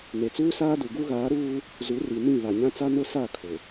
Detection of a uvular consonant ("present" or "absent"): absent